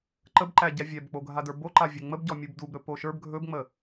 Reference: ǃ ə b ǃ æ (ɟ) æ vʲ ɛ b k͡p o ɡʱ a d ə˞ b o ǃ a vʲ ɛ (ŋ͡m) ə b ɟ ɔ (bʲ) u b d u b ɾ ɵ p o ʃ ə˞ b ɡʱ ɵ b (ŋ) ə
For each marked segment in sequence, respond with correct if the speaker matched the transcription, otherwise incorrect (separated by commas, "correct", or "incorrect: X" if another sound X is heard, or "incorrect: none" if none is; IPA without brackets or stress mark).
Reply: correct, correct, incorrect: mʲ, incorrect: ŋ͡m